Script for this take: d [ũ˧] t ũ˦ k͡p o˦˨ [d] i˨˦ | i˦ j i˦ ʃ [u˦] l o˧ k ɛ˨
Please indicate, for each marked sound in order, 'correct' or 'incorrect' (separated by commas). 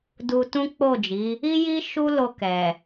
incorrect, incorrect, correct